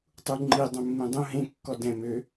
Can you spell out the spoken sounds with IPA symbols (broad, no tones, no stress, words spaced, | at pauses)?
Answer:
tˤuŋ͡ǃi dˤũmːẽdˤũ ɦẽ kːɔdɛ̃ mø